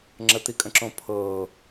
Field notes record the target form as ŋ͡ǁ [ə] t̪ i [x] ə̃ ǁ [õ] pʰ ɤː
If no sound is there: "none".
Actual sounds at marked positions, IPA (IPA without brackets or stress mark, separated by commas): ə, kʼ, õ